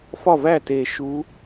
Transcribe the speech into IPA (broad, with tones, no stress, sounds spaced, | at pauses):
f ɒ˥˩ v æ˥˩ t e˨˩ ʃ u˨˦